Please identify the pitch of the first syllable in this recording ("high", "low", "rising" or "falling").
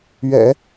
low